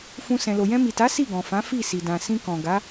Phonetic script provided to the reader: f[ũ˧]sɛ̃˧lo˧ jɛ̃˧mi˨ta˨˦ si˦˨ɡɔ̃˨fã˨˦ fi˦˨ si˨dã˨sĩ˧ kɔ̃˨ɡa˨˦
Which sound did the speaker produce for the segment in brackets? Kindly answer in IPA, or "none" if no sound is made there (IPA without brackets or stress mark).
ũ˦